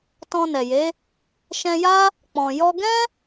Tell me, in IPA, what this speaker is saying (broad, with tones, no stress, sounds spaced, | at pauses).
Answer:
t ɔ̃˧ n ɛ˨ j e˨˦ | ʃ ɛ̃˧ j a˦ | k͡p ɔ̃˨ j ɔ˧ ɡ ɛ̃˦